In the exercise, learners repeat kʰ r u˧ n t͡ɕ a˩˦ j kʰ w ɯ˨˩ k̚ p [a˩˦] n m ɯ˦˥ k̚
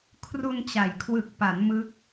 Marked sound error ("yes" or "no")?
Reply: no